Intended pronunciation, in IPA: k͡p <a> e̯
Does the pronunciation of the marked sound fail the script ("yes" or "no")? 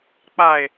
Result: no